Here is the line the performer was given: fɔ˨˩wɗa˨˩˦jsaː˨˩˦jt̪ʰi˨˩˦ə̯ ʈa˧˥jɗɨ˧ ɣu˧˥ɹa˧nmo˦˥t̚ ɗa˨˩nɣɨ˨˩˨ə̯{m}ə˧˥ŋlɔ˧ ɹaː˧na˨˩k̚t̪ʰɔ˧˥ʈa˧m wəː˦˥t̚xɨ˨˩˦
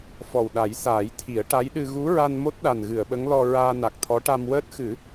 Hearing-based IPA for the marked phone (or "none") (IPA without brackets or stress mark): ɓ